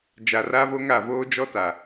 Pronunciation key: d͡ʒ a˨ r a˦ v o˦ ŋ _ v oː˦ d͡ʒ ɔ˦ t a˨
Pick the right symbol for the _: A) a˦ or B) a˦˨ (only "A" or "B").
B